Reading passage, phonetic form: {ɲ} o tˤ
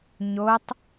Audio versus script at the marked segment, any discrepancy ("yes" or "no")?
no